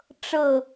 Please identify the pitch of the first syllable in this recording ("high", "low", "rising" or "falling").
falling